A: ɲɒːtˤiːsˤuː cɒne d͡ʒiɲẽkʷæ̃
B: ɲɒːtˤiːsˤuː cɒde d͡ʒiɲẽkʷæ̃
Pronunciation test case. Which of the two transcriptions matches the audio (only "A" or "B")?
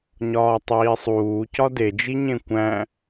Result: B